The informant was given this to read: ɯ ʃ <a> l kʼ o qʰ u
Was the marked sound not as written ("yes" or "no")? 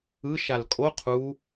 no